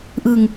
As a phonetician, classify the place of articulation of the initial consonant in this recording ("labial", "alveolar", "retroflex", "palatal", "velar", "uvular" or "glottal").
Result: glottal